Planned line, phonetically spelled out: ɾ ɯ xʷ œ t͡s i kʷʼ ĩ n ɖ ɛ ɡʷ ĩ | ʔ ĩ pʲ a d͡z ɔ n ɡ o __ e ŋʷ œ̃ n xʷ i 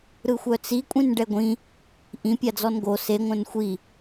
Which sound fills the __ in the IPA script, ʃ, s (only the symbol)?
s